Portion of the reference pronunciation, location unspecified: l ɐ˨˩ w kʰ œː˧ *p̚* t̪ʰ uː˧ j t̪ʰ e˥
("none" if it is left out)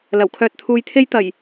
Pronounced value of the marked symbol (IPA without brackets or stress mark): t̚